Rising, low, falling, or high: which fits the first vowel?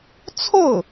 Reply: falling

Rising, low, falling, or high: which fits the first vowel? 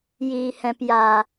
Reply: low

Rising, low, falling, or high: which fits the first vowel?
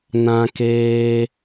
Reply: high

